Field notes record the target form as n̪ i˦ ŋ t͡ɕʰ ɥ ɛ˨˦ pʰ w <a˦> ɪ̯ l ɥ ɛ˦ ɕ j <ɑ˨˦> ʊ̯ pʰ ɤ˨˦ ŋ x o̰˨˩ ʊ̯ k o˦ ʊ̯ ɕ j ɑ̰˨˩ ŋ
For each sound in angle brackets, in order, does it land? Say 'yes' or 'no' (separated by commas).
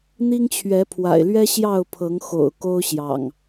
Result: no, no